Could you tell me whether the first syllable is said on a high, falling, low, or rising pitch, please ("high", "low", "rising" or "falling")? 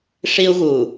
high